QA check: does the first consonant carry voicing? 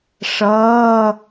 no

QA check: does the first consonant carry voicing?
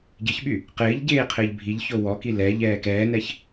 yes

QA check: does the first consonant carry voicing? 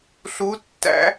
no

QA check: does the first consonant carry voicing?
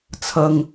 no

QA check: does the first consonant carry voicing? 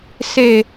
no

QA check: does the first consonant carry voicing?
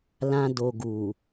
yes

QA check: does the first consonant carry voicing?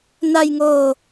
yes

